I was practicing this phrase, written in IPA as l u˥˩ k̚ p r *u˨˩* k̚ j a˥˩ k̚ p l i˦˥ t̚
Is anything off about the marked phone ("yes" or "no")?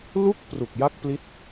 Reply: no